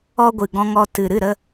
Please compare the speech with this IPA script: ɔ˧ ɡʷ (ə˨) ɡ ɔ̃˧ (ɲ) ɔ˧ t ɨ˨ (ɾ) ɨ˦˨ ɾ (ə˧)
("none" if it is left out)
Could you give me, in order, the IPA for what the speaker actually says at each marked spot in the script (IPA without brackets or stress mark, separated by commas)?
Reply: ɨ˨, ŋ, ɾ, ə˧